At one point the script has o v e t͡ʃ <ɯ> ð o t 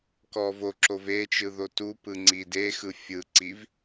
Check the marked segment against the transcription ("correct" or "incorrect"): correct